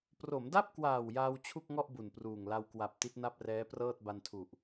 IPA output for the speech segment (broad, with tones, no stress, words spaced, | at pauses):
pro˩˦mda˥˩p̚kwaː˨˩w jaː˧wt͡ɕʰu˥˩k̚ŋɔ˥˩ʔ bu˨˩npruː˨˩ŋ la˧wkwa˨˩p̚ ti˦˥t̚na˥˩p̚rɛː˦˥prɤː˥˩t̚ ba˧ntʰu˨˩ʔ